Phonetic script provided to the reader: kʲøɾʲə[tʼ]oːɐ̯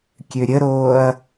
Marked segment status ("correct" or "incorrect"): incorrect